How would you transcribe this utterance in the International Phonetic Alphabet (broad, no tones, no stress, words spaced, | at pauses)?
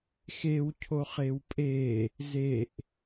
xewcʰo χewpʼe | zeʔ